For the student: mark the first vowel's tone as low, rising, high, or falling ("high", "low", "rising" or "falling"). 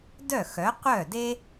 falling